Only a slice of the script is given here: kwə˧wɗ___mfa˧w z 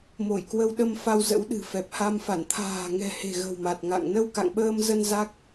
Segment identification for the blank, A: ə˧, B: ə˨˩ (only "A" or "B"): A